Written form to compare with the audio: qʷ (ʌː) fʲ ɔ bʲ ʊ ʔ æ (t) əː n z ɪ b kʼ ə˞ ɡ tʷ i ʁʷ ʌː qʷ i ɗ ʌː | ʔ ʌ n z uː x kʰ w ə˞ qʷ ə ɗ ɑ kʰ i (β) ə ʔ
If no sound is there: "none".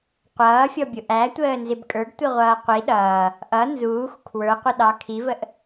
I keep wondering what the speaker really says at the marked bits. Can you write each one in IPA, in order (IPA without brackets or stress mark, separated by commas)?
ʌː, tʷ, v